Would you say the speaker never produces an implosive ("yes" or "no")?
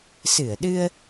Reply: no